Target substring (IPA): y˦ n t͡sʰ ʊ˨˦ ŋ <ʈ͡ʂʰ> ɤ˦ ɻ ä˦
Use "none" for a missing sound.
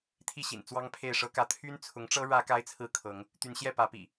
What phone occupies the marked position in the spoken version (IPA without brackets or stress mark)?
ʈ͡ʂ